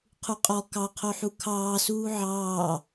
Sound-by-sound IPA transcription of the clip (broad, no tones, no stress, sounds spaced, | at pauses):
qʰ u qʼ ɔ k ɑ qʰ o ħ u kʰ ɑː s uː ʕ ɑː